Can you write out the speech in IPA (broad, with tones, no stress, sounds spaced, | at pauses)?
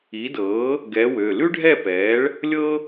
i˨˥ d ɤː˨˥ | ɡ ɛː˨˥ w ø˩˧˩ l ʉ˥ ɖʱ ɛ˥˨ p ɛː˨˥ ɭ | lʲ ɤ˥